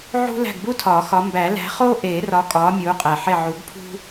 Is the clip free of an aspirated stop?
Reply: no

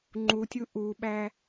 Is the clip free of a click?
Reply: no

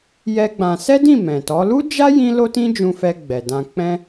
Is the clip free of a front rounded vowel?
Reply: yes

